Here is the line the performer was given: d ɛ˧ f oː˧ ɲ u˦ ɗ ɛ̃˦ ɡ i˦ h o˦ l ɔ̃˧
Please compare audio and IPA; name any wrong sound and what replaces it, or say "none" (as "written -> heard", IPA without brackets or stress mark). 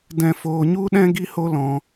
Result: ɛ˧ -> ɛ̃˧